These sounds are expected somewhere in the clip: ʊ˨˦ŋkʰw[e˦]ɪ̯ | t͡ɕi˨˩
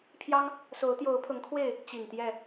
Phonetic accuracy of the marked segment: incorrect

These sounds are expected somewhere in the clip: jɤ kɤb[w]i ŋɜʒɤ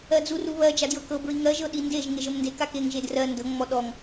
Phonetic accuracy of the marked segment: incorrect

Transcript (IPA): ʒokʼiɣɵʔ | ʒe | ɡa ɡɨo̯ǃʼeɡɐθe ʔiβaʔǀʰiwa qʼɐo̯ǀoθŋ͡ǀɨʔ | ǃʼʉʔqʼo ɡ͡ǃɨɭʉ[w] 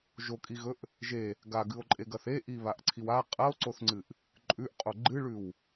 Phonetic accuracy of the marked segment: correct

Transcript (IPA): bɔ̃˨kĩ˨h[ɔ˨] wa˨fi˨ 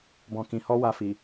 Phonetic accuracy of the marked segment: incorrect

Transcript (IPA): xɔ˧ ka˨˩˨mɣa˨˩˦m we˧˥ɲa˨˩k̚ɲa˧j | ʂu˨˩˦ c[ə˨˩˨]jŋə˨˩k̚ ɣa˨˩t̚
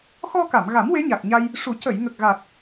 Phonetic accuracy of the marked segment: correct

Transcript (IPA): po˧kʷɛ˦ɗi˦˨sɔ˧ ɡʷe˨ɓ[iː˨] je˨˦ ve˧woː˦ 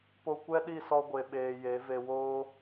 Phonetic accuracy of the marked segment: incorrect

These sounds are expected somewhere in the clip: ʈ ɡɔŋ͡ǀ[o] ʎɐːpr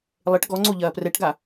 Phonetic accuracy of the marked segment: correct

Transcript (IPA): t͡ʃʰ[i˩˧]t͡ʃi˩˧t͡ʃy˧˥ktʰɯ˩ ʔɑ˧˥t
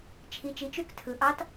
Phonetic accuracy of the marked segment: correct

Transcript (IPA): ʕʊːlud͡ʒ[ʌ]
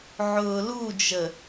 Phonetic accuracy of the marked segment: incorrect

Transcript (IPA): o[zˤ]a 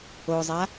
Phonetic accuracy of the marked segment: correct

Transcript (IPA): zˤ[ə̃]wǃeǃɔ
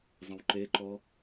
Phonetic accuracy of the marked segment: correct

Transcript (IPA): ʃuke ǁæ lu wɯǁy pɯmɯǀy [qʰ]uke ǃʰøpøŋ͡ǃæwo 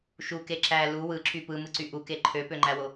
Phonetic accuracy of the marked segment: incorrect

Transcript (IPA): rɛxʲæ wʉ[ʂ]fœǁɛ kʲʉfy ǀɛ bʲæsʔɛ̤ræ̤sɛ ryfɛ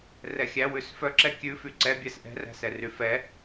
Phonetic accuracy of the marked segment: incorrect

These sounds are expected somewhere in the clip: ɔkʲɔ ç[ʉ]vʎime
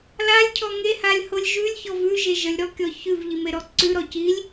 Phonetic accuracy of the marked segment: correct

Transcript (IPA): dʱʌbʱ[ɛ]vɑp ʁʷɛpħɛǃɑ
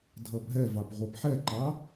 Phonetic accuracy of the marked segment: correct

